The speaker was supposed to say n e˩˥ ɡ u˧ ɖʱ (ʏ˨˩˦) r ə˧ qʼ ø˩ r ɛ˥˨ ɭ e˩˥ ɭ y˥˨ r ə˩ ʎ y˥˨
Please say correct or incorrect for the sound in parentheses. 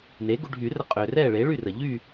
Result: incorrect